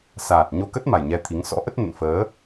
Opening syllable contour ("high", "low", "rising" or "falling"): low